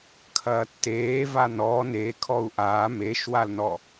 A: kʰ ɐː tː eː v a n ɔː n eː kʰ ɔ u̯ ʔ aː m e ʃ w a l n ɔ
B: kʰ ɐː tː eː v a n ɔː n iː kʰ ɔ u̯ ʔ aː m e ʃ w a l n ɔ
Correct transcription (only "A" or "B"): A